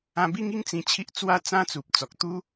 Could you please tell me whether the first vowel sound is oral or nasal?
nasal